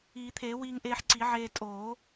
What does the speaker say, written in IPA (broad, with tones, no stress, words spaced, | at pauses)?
iː˨˩˦t̪ʰeː˨˩˦wiː˧ŋʔeː˧ħ ǀi˨˩˦ʕeː˧ tʼoː˨˩˦